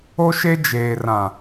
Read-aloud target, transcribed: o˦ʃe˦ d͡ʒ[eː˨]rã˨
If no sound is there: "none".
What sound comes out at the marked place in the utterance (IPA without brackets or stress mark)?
eː˨